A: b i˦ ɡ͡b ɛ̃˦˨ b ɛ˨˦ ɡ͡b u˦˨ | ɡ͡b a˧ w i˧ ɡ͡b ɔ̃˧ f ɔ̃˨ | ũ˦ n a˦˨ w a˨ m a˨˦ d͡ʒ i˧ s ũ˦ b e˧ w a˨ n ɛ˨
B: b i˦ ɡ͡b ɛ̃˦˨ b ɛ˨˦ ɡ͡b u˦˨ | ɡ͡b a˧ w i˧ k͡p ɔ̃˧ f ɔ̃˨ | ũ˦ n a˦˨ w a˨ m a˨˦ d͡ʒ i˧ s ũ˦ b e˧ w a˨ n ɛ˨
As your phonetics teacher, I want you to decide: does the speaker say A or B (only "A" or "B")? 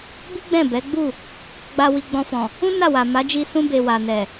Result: A